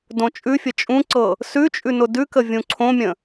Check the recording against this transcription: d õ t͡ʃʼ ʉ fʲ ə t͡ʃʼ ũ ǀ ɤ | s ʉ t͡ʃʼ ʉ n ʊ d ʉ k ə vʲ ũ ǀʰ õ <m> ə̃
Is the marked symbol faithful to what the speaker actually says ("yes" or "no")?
no